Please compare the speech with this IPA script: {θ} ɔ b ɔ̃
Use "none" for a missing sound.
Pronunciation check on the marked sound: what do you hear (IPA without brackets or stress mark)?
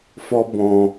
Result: f